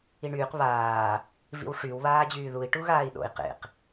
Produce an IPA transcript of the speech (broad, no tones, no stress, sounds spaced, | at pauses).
i ɳ yː q β aː | v ḭ w ʂ y w β aː d͡ʑ yː ð u i̯ ʈ u ɣ aː i̯ ɗ o̰ i̯ q ḛ q